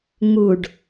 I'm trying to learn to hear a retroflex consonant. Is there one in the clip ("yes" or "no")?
yes